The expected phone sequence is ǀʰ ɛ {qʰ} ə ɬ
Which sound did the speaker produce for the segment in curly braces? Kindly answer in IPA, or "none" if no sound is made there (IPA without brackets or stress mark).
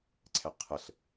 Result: qʰ